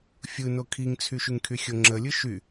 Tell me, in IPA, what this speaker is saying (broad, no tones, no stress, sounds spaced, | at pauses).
fʲ ɯ n o kʰ i ŋ t͡sʰ y ʃ y ŋ kʰ y xʲ o ŋ͡ǁ ə lʲ ɯ ʃ y